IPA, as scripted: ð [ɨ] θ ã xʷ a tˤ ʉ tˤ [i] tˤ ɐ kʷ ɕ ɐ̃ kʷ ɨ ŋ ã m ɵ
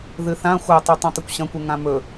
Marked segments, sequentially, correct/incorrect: correct, incorrect

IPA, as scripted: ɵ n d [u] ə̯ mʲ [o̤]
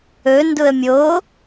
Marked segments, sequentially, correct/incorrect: incorrect, incorrect

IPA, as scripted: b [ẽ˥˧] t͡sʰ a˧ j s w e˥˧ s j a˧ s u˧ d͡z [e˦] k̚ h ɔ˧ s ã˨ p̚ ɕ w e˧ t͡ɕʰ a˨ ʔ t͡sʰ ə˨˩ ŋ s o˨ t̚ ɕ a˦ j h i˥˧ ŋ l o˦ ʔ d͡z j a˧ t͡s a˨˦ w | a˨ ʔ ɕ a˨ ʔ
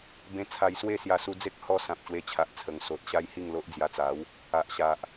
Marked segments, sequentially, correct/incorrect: incorrect, correct

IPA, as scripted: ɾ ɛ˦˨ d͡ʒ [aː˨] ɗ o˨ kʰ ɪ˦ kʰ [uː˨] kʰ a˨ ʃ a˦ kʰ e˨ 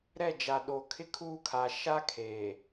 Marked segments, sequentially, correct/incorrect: incorrect, incorrect

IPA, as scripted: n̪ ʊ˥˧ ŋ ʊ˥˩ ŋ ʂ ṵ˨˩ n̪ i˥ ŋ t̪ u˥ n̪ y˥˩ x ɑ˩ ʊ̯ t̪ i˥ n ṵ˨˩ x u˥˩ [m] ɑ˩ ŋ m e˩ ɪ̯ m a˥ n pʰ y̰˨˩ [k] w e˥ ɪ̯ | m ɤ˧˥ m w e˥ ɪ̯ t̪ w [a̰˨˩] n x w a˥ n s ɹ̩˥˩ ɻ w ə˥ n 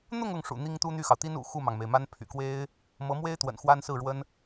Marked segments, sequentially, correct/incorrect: correct, correct, incorrect

